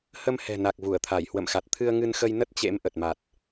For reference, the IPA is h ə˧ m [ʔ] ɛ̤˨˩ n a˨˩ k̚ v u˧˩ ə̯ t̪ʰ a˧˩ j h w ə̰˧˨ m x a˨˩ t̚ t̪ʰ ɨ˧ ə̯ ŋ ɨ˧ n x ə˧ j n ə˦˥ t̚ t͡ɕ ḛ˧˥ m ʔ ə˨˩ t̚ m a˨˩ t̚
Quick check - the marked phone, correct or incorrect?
incorrect: h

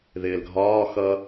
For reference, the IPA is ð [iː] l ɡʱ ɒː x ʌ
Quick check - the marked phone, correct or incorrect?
incorrect: ɪː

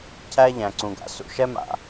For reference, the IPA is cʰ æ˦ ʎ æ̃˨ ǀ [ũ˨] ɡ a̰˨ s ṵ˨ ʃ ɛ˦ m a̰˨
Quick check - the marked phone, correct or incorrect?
correct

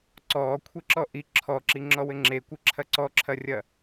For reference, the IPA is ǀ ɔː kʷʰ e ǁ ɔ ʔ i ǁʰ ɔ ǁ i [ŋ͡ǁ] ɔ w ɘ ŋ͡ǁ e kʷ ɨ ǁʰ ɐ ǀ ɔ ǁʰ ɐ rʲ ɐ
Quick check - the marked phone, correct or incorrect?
correct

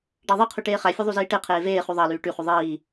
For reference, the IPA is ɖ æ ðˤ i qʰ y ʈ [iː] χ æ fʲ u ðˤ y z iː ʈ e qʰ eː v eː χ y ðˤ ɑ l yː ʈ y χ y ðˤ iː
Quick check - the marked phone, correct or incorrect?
incorrect: eː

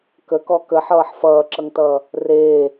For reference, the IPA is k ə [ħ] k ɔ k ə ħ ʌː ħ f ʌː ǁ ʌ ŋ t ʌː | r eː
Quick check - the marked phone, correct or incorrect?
incorrect: none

